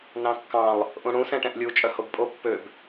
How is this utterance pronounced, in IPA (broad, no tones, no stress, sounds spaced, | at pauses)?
n ɑ̃ kː ɑ̃ lˠ | ʔ ũ ɽ ũ s ɛ̃ ʈ ɛ̃ ʔ lʲ u t͡ʃʼ œ h o b pʼ o pː ø b